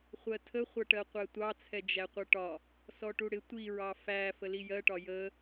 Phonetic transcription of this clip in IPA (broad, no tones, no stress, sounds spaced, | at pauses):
χʷ ɜ tʰ ə χʷ ʌ ʈ ɜ qʷ æ tʷ ɑ t͡sʰ ɛ d͡ʒ æ qʷ ʌ ʈ ɒ | s ɔ ʈ u ɽ ɪ tʷ i ɹ ɑ f æ f ə l i j ɜ ʈ ɒ j ə